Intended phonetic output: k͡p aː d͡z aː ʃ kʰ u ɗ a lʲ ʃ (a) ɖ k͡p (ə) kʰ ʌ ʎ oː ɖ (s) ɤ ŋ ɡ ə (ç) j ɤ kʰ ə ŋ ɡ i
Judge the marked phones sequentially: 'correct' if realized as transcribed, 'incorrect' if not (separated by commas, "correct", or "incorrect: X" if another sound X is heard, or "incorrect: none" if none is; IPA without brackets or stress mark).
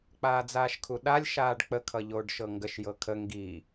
incorrect: aː, correct, incorrect: ʃ, incorrect: ʃ